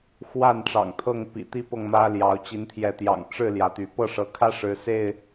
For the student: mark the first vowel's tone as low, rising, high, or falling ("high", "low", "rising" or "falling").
falling